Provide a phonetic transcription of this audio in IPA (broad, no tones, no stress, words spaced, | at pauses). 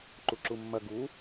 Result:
ǃuǁumːɐ ɡu